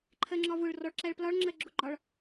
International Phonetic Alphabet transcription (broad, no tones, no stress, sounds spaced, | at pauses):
ǃʰ ɜ ŋ͡ǁ ɒ v ʊ ɭ r ɔ ɭ ǁ æ ɭ p l ɒ ɭ ŋ͡ǁ ɜ ɡ͡ǁ ʊ ɡ͡ǃ ɒ ɭ